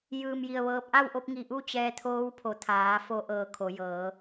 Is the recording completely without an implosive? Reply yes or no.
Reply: yes